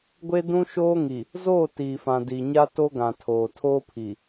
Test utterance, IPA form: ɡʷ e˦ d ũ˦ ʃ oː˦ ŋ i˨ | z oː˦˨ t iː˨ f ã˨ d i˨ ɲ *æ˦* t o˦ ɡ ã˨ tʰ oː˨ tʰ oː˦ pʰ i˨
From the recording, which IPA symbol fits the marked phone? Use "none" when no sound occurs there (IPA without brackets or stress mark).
a˦